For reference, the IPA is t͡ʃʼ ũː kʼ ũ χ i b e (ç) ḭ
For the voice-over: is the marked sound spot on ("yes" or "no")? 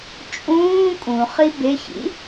yes